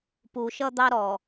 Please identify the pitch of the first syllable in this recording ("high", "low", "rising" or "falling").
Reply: low